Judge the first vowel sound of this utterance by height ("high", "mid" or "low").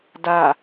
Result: low